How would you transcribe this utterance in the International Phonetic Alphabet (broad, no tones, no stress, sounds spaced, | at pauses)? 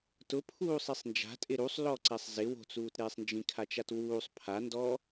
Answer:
t ʊ pʰ uː sˤ i sˤ n d͡ʒ a̤ tʼ ɪ ɾ u sˤ l ɔ ǀ ɛ sˤ z ɪ w o̤ t͡s uː t ɾ eː sˤ n d͡ʒ ĩ kʰ a t͡ʃ a t w uː sˤ pʰ a n d ɔ